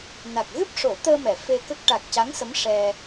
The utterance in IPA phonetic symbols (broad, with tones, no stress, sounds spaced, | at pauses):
n a˨˩ k̚ ɣ ɨ˦˥ p̚ ʂ o˨˩˦ t̪ əː˧ m ɛ˨˩˨ f e˧ k ə˦˥ k̚ ʈ a˨˩ k̚ c a˧˥ ŋ s ə˧˥ m ʂ ɛ˧